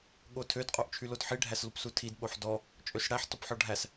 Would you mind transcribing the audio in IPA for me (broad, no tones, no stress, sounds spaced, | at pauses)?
ɠ o tʰ ø d qʼ o ʔ t͡ʃʰ y l o d ħ i ɖʱ æ s l u p s u tʰ i d ɓ o ħ d ɔ | t͡ʃʼ ø s ɽ æ ħ t ɔ p ħ ɔ ɖʱ æ s